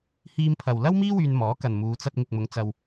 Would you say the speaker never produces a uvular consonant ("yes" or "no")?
yes